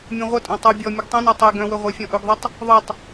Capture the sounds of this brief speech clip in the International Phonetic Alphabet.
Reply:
mʲ õ ʁʷ ə tʼ õ tˤ u bʲ ɔ mʲ ɯ ɡ tˤ õ n ɔ tˤ e ɡ œ̃ w ɵ ʁʷ œ fʲ ɔ̃ ʔ ɵ ɡ ðˤ u tˤ | ðˤ ɯ tˤ

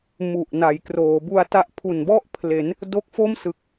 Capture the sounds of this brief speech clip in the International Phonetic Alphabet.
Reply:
m u˨˩ ʔ n a˩˦ j k r oː˩˦ b u˧ a̯ t a˦˥ ʔ pʰ u˨˩ n b ɔ˥˩ ʔ pʰ l e˩˦ n | d o˦˥ k̚ f o˥˩ m s ɯ˨˩ k̚

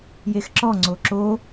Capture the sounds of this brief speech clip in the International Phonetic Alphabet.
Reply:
j e x ǁ ɔ ŋ͡ǀ o ǁ o

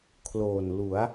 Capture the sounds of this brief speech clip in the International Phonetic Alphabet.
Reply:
kʰ l oː˨˩ n l u˩˦ a̯

